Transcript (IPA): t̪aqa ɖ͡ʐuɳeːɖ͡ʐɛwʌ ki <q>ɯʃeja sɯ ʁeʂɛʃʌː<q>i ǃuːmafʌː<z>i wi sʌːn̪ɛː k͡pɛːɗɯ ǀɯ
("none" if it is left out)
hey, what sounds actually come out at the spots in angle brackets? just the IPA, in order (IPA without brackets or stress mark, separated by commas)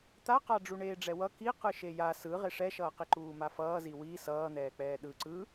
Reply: q, q, z